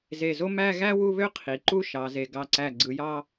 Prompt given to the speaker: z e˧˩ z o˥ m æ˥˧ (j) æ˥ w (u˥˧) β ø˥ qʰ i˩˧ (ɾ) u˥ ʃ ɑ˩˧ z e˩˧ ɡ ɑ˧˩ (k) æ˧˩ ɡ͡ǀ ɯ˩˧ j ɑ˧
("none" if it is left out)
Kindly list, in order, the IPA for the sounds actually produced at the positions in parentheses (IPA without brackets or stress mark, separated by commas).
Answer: ɣ, u˥˧, ǃ, ǀ